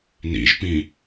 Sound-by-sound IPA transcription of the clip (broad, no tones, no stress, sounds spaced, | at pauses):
n ḭ ʒ p ĩ